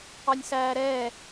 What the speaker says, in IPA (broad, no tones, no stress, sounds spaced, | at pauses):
ɑ nʲ s æː ɾ ɛː